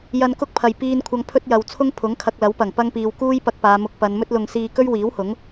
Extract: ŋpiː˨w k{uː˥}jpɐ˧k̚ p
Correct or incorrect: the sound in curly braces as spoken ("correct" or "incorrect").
correct